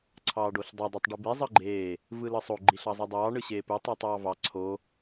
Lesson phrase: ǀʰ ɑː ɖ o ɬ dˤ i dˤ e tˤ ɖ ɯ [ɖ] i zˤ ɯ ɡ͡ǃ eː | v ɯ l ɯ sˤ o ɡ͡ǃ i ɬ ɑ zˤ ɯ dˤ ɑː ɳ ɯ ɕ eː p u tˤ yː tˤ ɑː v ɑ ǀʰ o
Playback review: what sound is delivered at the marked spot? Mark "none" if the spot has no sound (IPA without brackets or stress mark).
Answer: b